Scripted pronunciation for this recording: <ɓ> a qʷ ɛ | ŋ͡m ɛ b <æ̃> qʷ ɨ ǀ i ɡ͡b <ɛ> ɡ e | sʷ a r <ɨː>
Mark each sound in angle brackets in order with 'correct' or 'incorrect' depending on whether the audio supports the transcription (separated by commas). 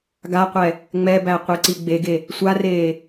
incorrect, incorrect, incorrect, incorrect